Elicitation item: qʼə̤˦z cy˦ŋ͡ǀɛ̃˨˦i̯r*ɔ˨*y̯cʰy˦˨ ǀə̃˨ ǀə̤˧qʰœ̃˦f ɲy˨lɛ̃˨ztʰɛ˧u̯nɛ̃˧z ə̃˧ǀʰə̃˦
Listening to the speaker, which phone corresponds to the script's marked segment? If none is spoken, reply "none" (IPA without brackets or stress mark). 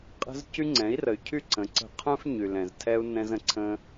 ə˨